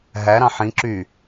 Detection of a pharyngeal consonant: present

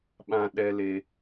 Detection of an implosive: present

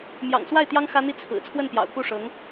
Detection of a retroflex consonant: present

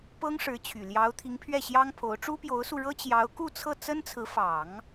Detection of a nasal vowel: absent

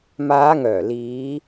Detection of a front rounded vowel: present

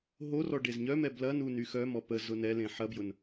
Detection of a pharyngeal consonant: present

